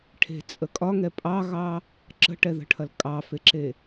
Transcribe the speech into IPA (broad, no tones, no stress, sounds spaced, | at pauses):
ʈʰ e̤ t͡sʼ ə kʼ ɒ ŋ ɛ pʼ ɑ ɣ ɑ | ǁ ə̤ ʈ ɛ ð ə̤ ʈʰ ɐ l kʼ ɑ f e ǁ e